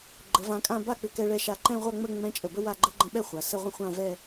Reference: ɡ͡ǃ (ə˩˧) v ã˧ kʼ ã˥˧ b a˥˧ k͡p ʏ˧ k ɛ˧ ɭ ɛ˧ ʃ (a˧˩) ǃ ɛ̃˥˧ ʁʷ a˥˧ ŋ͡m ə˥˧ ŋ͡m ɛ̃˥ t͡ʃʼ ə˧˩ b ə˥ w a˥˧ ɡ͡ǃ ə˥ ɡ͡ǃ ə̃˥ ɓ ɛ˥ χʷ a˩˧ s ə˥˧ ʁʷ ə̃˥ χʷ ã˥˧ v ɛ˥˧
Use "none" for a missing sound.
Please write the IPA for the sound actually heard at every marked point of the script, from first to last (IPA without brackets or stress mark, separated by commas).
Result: ə˩˧, a˧˩